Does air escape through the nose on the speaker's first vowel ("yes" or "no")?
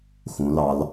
yes